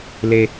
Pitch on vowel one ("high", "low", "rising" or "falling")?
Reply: high